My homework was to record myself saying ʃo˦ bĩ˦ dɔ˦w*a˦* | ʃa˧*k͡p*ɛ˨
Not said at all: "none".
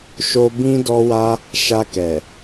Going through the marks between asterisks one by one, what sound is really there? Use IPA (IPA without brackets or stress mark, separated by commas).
a˦, k